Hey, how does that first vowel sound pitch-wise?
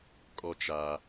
low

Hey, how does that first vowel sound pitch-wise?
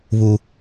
high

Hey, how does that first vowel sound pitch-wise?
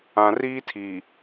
low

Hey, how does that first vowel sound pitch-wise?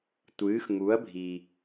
rising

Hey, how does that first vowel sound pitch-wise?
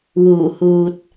low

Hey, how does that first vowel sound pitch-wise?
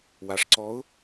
low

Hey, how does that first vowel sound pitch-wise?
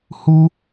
high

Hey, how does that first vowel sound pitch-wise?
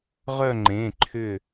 falling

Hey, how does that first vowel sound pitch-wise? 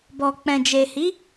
low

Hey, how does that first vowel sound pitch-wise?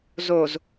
low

